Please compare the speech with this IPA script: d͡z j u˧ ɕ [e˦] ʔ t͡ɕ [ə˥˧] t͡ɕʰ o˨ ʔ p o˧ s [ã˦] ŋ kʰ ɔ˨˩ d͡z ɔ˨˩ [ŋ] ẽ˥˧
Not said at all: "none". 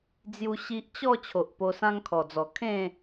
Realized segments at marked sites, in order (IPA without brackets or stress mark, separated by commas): i˦, ɔ˥˧, ã˦, kʰ